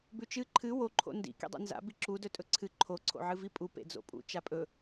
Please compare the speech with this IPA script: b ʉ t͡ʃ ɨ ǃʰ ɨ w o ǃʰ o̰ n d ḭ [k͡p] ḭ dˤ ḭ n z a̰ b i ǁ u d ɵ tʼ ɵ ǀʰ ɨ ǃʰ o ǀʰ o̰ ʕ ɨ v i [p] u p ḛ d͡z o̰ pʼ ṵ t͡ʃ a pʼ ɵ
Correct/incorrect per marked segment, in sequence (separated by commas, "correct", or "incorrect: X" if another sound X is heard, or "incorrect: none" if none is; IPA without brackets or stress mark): incorrect: k, incorrect: pʼ